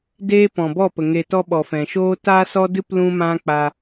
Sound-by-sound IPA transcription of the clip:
d eː˦ p ɔ̃˨ b ɔ˦˨ p ə˨ ŋ e˧ t ɔ˦ ɓ ɔ˨ f ɛ̃˨ ʃ oː˦ t aː˦ s ɔ˦ d ɨ˦ p l ũ˦ m ã˦ k͡p a˧

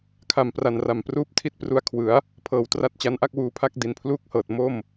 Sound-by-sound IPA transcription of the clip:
kʰ a˨˩ m p r a˨˩ n r a˨˩ m p r uː˥˩ p̚ tʰ i˥˩ t̚ p r u˧ a̯ kʰ w ɯ˩˦ a̯ | pʰ ɤː˨˩ w t r a˦˥ t̚ t͡ɕ a˦˥ n ʔ a˥˩ k̚ w uː˧ pʰ a˥˩ k̚ d i˨˩ n pʰ l uː˥˩ k̚ h ɤː˨˩ t̚ m o˥˩ m

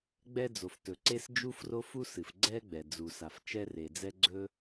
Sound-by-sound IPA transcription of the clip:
ɡ͡b ɛ˥ d͡z o˩ f t ɵ˩ ǀ e˥ s d͡ʒ u˥ f r o˥ f u˥ s ɨ˩ f ɡ͡ǀ ɛ˥ ɡ͡b ɛ˩ d͡z u˩ s a˩ f t͡ʃ ɛ˥ r e˩ d͡z ɛ˥ ɡ͡ǀ ɵ˥

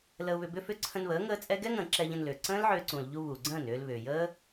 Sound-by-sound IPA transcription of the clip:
l ə˧ ʊ̯ β ʏ˧ b ʏ˦ f ʏ˦ ǀʰ ə̃˧ n β əː˨˦ ŋ əː˦ t͡sʼ ɛ˦ ɡ ɛ˦ ŋ ə̃ː˨ ǁ ɛ˧ ʎ ə̃˧ n l ʏː˨ ǀ ə̃ː˦ l ʕ ʏː˧ ǀ ũ˨ l ʎ u˧ β u˨ ɡ͡ǀ ə̃ː˦˨ n ʏː˧ l β ʏː˨ j əː˦

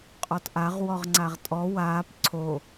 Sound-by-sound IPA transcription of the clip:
qʼ ɔ t ʔ a ʁ w ɔ ʁ ŋ͡ǀ a ʁ tʼ ɔ w aː p ǀʰ o

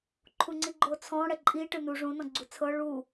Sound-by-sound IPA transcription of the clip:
ǃʰ u ŋ͡ǀ i ɡ͡ǃ o t͡sʰ ɔ̃ ɽ ɛ ǃʼ i ʈ ɯ n u ʐ ũ n ɔ̃ ɡ͡ǀ u t͡sʰ ɤ ɭ u

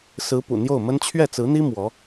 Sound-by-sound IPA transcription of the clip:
s ɹ̩˧˥ p ṵ˨˩ n̪ j o˥˩ ʊ̯ m ə˥ n t͡ɕʰ ɥ ɛ˥˩ t͡s ɹ̩˧˥ n̪ i˥ m w ɔ˧˥

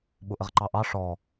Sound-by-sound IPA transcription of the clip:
ɓ ʊ ʔ ə ʁ ǃ ɑ ʔ ɑ ʂ ɔ

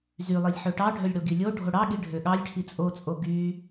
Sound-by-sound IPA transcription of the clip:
z y lˠ i lʲ ħ ø ʈ ɑ ɖʱ ø lʲ ɽ o ɡ i lʲ o ɖʱ o ɽ ɑ ɠ i ɖʱ ø ɠ ɑ lʲ ʈʰ i t͡sʼ o t͡sʼ o ɡ y

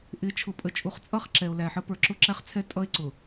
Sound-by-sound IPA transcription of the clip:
ʔ ɪ˨˦ t͡ʃʰ ʊ˨ pʼ ə˨ t͡ʃʼ u˨ χ t͡sʼ ʌ˦˨ χ ǁ ɛ˨ o̯ l æ˨ ħ ə˦ p ə˞˨ ǁ ʊ˦ ǁ æ˦ χ t͡sʰ ɛ˦ tʼ ʌ˦ e̯ ǀ ʊ˨

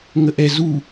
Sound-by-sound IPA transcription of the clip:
ŋ ə ʔ ɛ z u

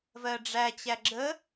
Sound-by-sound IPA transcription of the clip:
v ɜ ɖ͡ʐ æ t͡ɕ æ ɡ͡ǁ ə

